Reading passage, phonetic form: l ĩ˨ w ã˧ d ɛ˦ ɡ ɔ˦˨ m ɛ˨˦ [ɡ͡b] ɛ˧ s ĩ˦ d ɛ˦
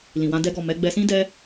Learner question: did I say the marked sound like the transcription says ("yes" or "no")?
yes